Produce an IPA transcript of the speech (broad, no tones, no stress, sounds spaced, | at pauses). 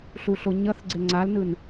ɬ u ɬ o ɲ ʌ θ ɡ͡ǀ e ŋ͡ǀ a l n ɯ n